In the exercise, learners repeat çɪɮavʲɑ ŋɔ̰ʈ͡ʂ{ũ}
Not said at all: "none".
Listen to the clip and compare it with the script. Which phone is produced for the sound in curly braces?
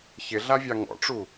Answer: u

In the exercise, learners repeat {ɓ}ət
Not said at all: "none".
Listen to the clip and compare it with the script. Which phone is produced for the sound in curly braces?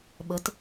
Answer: ɓ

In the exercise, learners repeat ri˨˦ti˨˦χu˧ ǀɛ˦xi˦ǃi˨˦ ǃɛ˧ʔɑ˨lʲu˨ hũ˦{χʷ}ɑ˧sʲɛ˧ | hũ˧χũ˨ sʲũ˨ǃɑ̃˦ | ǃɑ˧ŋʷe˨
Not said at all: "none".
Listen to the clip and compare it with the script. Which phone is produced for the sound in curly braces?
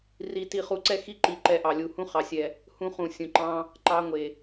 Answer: χ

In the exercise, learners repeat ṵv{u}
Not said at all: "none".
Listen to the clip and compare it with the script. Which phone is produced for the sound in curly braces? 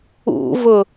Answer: ʊ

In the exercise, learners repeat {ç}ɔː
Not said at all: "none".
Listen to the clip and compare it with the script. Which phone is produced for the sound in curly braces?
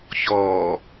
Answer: ç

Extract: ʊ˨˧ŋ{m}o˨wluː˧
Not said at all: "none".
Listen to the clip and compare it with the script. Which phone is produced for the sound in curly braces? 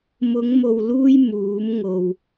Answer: m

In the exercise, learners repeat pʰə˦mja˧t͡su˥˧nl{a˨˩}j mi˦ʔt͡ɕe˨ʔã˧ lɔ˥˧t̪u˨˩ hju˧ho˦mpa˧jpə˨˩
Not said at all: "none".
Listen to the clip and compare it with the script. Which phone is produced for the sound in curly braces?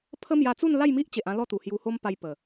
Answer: a˥˧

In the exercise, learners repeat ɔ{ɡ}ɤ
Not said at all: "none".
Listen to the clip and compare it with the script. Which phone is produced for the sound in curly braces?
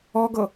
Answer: ɡ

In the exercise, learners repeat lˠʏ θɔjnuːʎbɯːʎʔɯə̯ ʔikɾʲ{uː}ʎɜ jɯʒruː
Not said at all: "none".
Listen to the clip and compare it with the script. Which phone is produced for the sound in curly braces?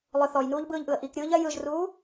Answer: ɯː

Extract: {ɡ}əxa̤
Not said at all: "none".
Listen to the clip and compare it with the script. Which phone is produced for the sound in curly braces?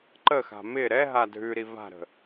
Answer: ǃ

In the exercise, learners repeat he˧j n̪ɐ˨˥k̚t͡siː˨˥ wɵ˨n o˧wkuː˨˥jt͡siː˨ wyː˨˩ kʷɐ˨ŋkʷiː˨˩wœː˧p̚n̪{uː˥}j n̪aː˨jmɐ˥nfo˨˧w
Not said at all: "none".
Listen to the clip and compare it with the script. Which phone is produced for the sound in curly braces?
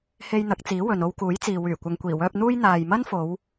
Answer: uː˥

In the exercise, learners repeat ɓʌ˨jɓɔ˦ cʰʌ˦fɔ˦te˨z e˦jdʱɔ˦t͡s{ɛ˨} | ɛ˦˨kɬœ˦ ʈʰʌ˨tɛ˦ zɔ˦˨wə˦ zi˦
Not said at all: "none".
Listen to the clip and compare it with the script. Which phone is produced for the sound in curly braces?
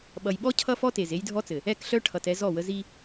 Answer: ɘ˨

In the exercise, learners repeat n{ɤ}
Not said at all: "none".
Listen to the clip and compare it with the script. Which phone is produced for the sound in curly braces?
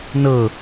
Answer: ɤ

